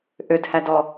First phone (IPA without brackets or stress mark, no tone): ʔ